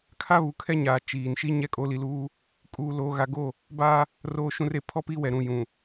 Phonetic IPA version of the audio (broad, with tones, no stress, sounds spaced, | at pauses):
kʰ a˦ β u˨ kʰ ɛ˦ ɲ aː˨ t͡ʃ iː˨ n ʃ i˦ ɲ ɛ˦ kʼ o˨˦ l i˨ l uː˦ | kʼ uː˨ l oː˨ ɣ a˨ ɡ o˦˨ | b aː˦ | r oː˨ ʃ ũ˨ r e˨ pʰ ɔ˦ p i˦ w ɛ˨ ɾ ũ˨ j ũ˨